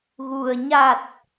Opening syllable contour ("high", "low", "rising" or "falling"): low